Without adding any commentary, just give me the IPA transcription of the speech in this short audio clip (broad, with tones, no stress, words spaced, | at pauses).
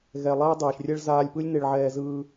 ɣɛ˩ lˠɛː˧dˤɛː˩ʃrʲɛ˧ɭ zaː˧lʲpɯ˥lʲne˧ɭʕɛː˧ zɯː˧